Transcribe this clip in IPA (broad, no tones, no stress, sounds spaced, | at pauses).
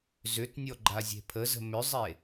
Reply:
z ʏ t nʲ ɔ ɡ͡ǃ a zʲ e̤ pʰ ə z ə̤ m ʏ zˤ e